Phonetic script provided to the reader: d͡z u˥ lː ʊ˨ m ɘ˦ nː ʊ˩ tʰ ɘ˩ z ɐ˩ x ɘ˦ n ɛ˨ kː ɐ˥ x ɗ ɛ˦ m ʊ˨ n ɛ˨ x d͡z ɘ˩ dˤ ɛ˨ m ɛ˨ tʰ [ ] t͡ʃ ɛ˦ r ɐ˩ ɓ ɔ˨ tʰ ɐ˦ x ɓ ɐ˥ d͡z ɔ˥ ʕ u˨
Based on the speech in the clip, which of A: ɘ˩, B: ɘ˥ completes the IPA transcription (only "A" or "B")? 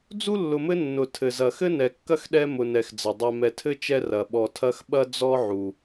B